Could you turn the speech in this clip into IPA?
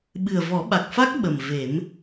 ɓɨ˨˩ə̯vɔ˨˩˦ɓa˨˩k̚fa˦˥k̚ ɓə˨˩mve˨˩˦m

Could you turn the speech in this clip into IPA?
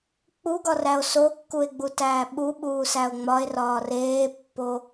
k͡puɡɒræo̯ sokːue̯ɡ͡butæː ɓuɓuːsæo̯ ŋ͡mɒe̯rɒː reːpːo

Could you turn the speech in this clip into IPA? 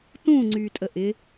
tũːŋ͡ǀyːtʼə ʔɪ

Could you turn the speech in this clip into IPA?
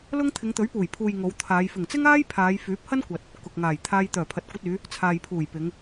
lʊ˥ŋ t̪ʰɪ˨˧ŋt̪ɵ˨˥ɥpuː˨˩j pʰuː˨j ŋo˨˧wt̪ʰaː˨˧j fɪ˨˩ŋt͡sɪ˥ŋaː˥j pʰaː˨˧jfyː˨˥p̚hɐ˥nkʷɐ˨t̚ | kʊ˨k̚ ŋaː˨˩jt̪ʰaː˧j t̪œː˨˩pʰɐ˨t̚kʷɐ˧t̚yː˨˧ | t͡sʰaː˨jpʰuː˨˩jpɪ˨˧ŋ

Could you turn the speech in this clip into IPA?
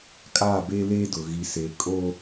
kʼaː˦˨be˦leː˦dʊ˨ ɣi˨se˨kʼo˦

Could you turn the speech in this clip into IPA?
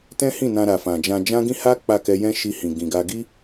tɛ̃˦hĩ˦˨ nã˧ɾa˨ fã˨d͡ʒã˧d͡ʒã˦ɡĩ˦ ha˦ k͡pa˦˨kɛ˧jɛ̃˦ʃi˧ hĩ˨ɡĩ˨ɡa˧ ɡi˦

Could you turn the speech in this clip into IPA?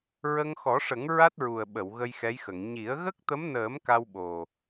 ɹə˧ŋxɔ˨˩˦ʂə˨˩˦ŋ ɹa˦˥t̚ɹu˨˩ə̯ɓə˨˩˨w ɣə˧j xɛ˧˥jxə˨˩˨ŋ ɲi˨˩˦ə̯ ɣə˦˥k̚t̪ə˧˥mnəː˨˩˦m ka˧wɓo˨˩

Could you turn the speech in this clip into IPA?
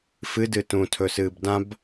fɨ dɨtũtʰɵ sɨːbdãb

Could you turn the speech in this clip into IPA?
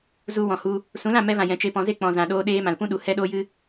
zu˧ wɔ̃˨hu˧ | sũ˨˦lã˦˨mɛ˧vã˨ jɛ̃˧t͡ʃe˦pɔ̃˧ ze˦k͡pɔ̃˨ zã˨ɗoː˧ɗeː˧ mã˨lpũ˦ɗu˨ hɛ˦ɗoː˦jɨ˦

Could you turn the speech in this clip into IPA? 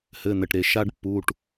hɘ˩˧˩n̪ɘ˩ʈɾe˩ ʃa˦ɖpːu˩˧˩ʈ

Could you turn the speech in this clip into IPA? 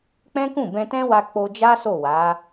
k͡pɛ̃˦kũ˦˨ bɛ̃˧tɛ̃˦wa˧ k͡po˧d͡ʒa˦so˦˨ wa˨˦

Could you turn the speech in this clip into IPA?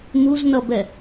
muznʌbɛ

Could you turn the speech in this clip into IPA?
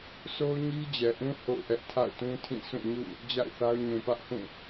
sʰo˦ʊ̯ɲi˦d͡ʑɛ˨ʔũ˦ ho̰˦˨ʊ̯ʔɛ˦ʔ tʰa̰˦˨ʊ̯tũ˦tʰĩ˦˨sʰũ˦˨ ɲṵ˦˨ | d͡ʑa̰˦˨ɪ̯θa˦ʊ̯ ɲũ˨pä˦ʔhũ˦˨

